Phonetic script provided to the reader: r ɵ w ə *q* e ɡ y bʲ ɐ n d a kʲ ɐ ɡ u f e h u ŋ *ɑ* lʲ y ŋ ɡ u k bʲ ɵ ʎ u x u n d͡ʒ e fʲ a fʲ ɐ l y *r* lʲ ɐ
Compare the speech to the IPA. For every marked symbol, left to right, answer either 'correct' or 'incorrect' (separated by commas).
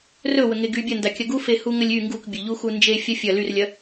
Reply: incorrect, incorrect, correct